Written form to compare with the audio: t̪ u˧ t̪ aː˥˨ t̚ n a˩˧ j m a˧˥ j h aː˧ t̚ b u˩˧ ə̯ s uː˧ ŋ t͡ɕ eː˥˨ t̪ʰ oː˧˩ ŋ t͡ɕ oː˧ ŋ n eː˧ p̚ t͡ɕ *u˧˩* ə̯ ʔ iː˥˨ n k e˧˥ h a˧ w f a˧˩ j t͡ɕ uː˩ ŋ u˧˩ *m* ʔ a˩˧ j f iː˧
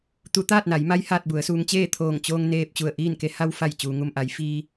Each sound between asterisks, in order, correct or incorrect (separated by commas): correct, correct